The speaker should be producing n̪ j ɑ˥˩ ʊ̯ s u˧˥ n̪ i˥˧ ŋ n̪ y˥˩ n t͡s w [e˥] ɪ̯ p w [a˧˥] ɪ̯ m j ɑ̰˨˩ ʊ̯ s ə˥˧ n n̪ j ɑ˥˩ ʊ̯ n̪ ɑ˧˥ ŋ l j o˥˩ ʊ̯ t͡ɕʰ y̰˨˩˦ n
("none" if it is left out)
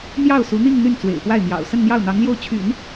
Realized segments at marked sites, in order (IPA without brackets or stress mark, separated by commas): ḛ˨˩, a˥˩